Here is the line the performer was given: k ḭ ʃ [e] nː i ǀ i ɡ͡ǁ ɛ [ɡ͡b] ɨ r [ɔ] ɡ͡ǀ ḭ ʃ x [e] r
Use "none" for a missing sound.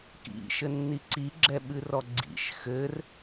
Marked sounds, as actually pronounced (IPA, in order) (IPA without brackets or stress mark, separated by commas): ɘ, ɓ, ɔ, ɘ